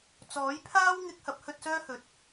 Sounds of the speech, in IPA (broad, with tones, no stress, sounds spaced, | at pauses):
t͡s ɔː˨˥ j pʰ aː˥ w ŋ ɪ˧ k̚ h ɐ˨˥ p̚ h ɵ˧ t̚ s œː˥ h ɵ˨˥ t̚